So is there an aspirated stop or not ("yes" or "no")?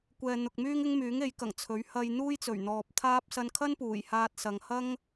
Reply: yes